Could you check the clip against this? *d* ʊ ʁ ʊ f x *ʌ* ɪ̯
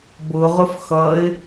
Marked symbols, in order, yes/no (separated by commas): no, yes